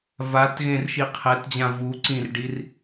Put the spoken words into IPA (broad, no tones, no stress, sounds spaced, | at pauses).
v a t ɣ ẽ r ʃ i qʰ ɛ t d͡ʑ ã v u ǀ ĩ r ɖ i r